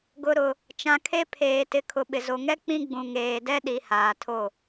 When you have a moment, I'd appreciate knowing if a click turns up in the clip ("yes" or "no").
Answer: no